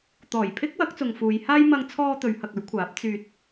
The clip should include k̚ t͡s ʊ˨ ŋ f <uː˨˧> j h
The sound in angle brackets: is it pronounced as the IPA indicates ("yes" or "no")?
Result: yes